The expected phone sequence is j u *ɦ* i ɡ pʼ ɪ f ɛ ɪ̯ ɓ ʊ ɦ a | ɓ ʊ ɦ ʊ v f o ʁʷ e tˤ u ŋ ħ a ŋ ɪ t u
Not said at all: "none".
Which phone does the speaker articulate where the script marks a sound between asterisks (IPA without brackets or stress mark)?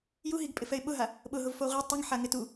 ɦ